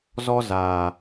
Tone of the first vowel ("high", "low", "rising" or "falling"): high